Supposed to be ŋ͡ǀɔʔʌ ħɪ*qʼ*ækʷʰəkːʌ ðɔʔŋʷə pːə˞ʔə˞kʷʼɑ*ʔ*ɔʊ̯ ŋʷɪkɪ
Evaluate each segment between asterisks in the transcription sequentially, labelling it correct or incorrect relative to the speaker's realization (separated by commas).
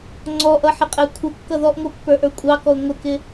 correct, incorrect